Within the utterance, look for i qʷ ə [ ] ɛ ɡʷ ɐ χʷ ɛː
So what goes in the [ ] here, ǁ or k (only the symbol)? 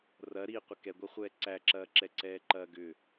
k